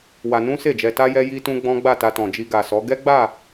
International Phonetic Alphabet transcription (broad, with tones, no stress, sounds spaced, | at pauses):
w a˧ n ũ˦ s e˦˨ d͡ʒ ɛ˧ t a˦ j ɛ˦ j i˦ t ũ˦ ɡ͡b ɔ̃˦ ɡ͡b a˦˨ t a˧ t ɔ̃˨ d͡ʒ i˧ ɡ a˨ s ɔ˨˦ ɡ ɛ˦ ɡ͡b a˦˨